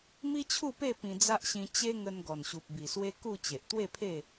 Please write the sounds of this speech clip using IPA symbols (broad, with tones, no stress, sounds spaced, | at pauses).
m i˦ t͡ɕʰ u˥˧ p e˥˧ p ĩ˧ d͡z a˦ ʔ ɕ ĩ˧ t͡ɕ e˦ ŋ ə˧ n ɡ ɔ˨˩ n ɕ u˨ p̚ b i˨˩ s w e˦ k u˥˧ t͡ɕ e˨ ʔ t̪ w e˥˧ pʰ e˥˧